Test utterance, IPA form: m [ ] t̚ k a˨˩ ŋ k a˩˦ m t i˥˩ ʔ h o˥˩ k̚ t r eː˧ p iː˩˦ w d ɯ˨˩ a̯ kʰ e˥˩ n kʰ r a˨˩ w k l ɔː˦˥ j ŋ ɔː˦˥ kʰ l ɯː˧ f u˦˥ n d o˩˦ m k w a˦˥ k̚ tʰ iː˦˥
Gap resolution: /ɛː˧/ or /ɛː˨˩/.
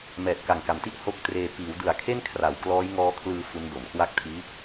ɛː˨˩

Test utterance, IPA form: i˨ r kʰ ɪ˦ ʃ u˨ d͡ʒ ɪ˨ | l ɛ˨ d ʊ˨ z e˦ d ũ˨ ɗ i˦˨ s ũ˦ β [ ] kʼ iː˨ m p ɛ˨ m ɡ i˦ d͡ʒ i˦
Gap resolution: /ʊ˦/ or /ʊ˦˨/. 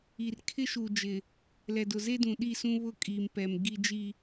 ʊ˦˨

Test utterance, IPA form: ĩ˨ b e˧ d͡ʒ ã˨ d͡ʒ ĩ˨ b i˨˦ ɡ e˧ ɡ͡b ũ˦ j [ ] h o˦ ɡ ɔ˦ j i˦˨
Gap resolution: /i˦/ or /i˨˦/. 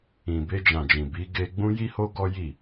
i˦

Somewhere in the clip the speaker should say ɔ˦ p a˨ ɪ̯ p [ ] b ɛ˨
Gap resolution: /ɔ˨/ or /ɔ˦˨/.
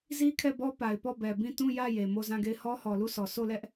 ɔ˦˨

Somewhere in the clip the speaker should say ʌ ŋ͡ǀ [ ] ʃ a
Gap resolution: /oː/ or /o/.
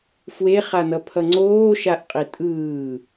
oː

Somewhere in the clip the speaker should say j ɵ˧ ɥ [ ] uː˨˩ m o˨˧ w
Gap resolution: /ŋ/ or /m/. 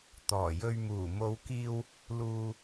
m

